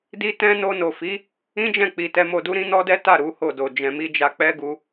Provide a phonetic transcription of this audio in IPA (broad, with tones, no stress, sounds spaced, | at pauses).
d i˦ t ɛ̃˦ n o˧ n o˨ f i˨˦ | ĩ˦ d͡ʒ ɛ̃˦˨ k͡p i˨ t ɛ˧ m o˧ d u˦ ɾ ĩ˦ n ɔ˦ d ɛ˦ t a˦˨ ɾ u˨˦ h o˦˨ d o˨ d͡ʒ ɛ̃˨ m i˨˦ d͡ʒ a˧ k͡p ɛ˦ ɡ u˧